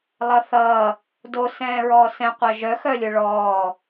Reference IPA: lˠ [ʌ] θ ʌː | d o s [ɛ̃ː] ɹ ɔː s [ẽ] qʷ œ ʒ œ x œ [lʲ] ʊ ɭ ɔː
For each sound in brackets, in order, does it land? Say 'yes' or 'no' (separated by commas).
yes, yes, no, yes